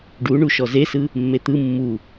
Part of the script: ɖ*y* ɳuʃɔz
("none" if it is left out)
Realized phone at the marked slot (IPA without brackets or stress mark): u